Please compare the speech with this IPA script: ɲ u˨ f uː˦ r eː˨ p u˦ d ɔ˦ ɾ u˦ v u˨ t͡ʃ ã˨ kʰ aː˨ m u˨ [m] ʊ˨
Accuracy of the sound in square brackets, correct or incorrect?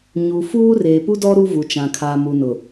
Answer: incorrect